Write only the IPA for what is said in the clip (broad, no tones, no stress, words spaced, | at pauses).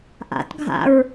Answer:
ʔa̰tɡʱa̰ɹ